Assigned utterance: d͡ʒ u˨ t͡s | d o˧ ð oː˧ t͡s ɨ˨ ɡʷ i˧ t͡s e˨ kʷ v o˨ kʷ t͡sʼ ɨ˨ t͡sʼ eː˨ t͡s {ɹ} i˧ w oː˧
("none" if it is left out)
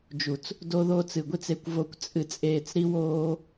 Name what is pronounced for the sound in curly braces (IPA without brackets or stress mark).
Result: ɾ